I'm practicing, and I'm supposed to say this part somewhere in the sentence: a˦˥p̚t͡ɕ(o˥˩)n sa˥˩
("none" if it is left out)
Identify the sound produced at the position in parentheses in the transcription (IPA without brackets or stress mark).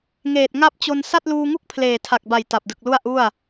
o˧